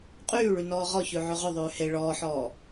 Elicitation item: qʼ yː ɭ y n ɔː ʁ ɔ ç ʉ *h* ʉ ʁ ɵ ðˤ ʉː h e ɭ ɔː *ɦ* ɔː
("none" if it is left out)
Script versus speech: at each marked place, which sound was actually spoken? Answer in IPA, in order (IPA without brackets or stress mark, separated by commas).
ʕ, ħ